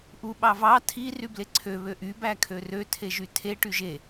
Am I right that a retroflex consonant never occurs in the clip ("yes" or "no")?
no